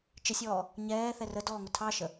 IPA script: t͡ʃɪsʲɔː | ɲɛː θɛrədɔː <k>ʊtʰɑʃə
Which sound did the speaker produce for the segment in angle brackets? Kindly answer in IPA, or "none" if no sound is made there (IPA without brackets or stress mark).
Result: ŋ